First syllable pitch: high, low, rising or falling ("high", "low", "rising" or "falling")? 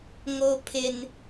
high